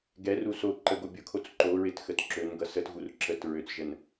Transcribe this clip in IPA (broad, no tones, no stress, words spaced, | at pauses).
ɡɛru so ǃəɡo bʲʊkʰot͡s ǃoɹɪt xətǁønɡʌ sətɣur ǁət ɹøt͡sʒən